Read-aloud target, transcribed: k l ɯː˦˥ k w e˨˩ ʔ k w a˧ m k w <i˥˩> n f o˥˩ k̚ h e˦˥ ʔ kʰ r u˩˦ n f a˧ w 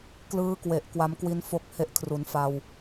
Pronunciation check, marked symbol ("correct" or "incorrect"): incorrect